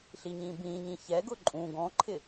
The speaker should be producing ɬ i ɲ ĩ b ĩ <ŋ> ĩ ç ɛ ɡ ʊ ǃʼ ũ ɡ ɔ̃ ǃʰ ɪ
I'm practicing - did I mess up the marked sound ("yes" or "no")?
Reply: yes